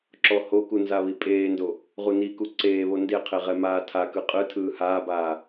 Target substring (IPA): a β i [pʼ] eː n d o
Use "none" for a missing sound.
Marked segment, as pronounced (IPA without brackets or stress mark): pʼ